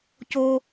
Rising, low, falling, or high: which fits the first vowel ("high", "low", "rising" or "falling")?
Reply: low